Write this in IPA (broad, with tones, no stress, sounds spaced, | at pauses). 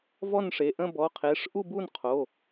v ɔ˥˧ n ʂ e˩˧˩ ʔ ə̃˥˧ b ɔ˩˧˩ qʰ e˩˧˩ ʂ ʔ u˥˧ b u˥˧ n qʰ o˩˧˩